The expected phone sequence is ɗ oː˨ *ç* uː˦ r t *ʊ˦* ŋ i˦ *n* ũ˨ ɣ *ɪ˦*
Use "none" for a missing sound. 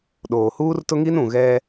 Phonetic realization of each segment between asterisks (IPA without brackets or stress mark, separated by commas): h, ʊ˦, n, ɛ˦